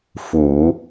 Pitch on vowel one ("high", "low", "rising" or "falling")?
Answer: low